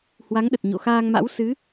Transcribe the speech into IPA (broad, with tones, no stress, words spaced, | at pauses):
hwa˨˦ŋɗə˨˩t̚ɲo̰˧˨xaː˧ŋ ma̰˧˥w sɨ˨˦